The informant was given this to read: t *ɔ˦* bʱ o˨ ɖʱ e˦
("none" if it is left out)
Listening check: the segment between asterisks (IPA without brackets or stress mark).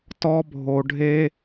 ɔ˦